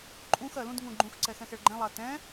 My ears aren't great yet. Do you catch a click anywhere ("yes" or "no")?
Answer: yes